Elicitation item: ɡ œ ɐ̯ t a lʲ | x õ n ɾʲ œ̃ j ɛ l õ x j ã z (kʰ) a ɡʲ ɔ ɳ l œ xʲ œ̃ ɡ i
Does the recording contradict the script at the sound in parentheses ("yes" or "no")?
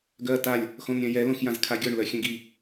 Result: no